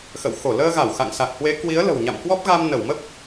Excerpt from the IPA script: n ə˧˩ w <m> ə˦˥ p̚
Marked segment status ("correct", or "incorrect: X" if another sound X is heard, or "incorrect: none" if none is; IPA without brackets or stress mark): correct